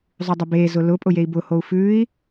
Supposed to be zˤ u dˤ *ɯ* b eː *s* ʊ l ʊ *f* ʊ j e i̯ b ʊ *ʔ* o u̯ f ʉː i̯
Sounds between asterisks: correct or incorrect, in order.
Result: incorrect: ʊ, incorrect: z, incorrect: pʼ, incorrect: h

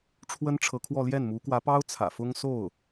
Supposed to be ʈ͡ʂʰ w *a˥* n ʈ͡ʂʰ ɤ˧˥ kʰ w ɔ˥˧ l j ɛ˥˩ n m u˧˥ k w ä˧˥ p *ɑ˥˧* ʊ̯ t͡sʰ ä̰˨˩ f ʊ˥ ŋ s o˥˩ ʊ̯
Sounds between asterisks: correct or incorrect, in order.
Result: incorrect: ə˥, incorrect: ɑ˥

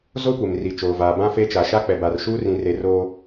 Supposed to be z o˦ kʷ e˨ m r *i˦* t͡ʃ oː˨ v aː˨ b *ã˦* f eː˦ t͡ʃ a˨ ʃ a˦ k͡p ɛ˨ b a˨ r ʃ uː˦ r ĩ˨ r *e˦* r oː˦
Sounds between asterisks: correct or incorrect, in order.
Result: incorrect: i˨, correct, incorrect: e˨

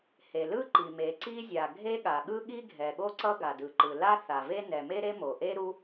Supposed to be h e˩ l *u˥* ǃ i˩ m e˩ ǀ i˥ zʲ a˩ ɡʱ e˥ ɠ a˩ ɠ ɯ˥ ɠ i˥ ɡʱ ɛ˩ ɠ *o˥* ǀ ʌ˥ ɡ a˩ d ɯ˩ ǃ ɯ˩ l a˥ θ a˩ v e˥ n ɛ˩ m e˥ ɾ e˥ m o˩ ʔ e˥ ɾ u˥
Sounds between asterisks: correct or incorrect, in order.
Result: incorrect: ɯ˥, correct

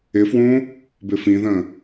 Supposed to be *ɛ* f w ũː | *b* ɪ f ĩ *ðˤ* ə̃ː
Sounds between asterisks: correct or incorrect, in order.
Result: incorrect: ɪ, correct, incorrect: ð

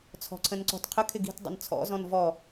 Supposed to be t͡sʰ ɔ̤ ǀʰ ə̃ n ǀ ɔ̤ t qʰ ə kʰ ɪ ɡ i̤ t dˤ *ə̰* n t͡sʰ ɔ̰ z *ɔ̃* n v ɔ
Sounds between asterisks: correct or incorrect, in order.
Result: correct, correct

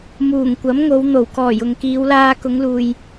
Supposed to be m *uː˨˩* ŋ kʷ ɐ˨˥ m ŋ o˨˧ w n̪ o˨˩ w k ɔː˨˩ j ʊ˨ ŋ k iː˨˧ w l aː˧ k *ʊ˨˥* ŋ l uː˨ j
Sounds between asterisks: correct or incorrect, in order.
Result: correct, incorrect: ʊ˨˧

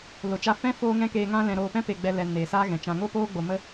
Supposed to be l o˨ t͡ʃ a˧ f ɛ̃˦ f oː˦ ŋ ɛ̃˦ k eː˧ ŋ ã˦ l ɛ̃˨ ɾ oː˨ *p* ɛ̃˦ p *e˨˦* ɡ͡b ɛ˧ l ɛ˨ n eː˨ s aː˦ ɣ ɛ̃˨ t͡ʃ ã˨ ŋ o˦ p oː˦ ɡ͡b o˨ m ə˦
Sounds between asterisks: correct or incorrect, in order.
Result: correct, incorrect: e˨

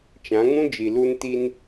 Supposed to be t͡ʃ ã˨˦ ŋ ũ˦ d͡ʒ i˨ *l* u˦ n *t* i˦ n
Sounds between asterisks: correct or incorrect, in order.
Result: correct, correct

